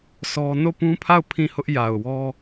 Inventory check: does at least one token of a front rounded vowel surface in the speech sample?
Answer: no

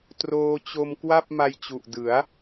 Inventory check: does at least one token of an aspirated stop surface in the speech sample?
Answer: no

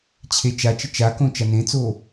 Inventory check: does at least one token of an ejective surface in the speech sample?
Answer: no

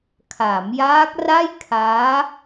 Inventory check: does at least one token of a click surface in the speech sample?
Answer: no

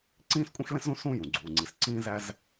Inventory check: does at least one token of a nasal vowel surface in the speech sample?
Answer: yes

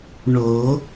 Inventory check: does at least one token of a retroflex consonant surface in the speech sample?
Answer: yes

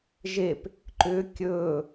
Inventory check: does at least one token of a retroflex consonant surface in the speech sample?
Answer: no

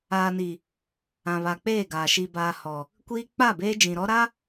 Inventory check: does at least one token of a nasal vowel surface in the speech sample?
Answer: yes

